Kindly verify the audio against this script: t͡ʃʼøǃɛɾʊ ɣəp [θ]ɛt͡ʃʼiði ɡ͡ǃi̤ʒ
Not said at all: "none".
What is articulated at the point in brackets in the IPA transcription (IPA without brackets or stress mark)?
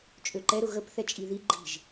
θ